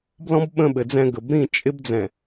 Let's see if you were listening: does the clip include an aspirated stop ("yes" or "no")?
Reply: no